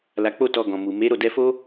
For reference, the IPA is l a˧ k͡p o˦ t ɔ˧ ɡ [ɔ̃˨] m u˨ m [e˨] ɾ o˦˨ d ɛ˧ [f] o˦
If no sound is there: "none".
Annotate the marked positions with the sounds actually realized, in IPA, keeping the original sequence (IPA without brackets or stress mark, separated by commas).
ɔ̃˨, e˨˦, f